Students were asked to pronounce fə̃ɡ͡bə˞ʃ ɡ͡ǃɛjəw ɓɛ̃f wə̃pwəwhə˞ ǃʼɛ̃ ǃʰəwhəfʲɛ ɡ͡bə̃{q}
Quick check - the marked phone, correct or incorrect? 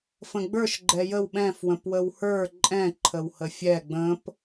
incorrect